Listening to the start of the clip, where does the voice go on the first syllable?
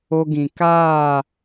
high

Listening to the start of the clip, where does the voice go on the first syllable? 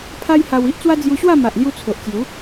high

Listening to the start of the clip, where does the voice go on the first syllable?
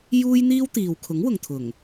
high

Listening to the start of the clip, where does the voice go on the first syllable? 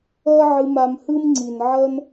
high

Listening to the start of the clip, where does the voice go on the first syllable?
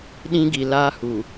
high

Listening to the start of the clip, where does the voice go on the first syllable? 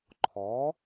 rising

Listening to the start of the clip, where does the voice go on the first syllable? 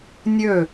falling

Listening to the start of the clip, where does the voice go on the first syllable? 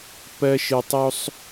high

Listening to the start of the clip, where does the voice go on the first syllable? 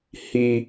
high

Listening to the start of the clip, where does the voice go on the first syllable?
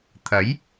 rising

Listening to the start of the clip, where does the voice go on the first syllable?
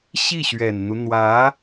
falling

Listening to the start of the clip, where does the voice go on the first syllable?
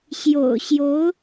low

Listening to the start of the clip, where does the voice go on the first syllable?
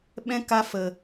high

